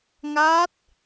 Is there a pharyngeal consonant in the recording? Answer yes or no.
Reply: no